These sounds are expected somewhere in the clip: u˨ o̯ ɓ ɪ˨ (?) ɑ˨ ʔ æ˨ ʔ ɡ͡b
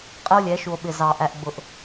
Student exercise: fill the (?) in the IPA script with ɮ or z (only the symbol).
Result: z